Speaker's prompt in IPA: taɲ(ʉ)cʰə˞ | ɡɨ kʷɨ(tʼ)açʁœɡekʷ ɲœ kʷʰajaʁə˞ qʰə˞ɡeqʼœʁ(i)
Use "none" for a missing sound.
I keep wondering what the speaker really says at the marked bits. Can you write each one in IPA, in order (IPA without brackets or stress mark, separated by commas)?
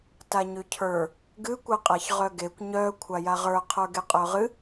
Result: ʉ, qʼ, ɨ